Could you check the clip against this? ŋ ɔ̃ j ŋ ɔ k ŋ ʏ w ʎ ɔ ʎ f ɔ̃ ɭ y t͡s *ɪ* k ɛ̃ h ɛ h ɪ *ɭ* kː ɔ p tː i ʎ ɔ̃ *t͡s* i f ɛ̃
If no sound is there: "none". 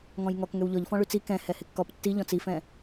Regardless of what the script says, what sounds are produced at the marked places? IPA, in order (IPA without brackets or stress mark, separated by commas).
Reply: i, none, t͡s